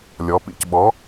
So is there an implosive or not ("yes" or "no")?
yes